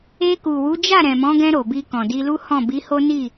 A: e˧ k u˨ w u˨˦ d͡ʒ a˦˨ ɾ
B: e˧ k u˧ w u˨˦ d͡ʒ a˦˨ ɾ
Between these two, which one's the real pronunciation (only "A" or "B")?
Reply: A